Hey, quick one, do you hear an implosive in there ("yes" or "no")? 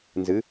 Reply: no